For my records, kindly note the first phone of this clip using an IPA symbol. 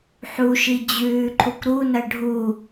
ħ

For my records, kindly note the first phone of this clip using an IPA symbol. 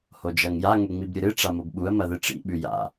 h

